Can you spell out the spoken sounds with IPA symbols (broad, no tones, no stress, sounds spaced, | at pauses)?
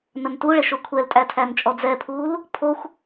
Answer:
n ə n t u ɭ e ʃ o kʷʰ ɛ l tʼ æ tʰ æ n t͡ʃʼ ɔ d͡z ɛ pʰ uː l | pʰ o xʷ